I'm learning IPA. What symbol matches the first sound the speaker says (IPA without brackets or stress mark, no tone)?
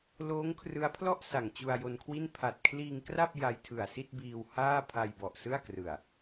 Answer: l